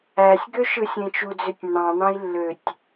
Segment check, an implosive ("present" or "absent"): absent